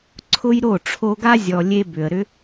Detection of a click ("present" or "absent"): present